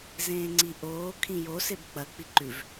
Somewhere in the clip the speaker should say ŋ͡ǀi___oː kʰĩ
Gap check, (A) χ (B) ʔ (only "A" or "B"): B